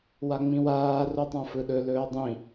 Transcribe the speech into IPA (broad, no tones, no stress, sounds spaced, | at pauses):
w a ŋ͡m ĩ w aː r u tˤ ã f ɯ ɗ ɵ l ɵː dˤ ĩ